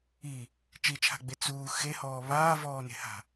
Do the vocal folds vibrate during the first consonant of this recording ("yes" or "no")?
no